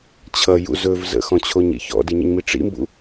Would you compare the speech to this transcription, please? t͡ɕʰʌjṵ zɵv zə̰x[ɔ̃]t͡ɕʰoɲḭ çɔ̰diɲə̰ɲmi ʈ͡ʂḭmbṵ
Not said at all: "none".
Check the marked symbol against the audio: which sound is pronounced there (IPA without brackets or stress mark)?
ɔ̃